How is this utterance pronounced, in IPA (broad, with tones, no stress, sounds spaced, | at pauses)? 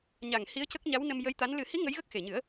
ɲ a˨˩ ŋ h i˧˥ ə̯ c ə˦˥ k̚ ɲ a˧˥ w n ə˧ m j ə˧˥ j t̪ a˧˥ n l ɨ˨˩˦ h i˧˥ ŋ ə˧˥ j ɣ ə˦˥ k̚ x e˨˩ ɲ ɨ˨˩˦ ə̯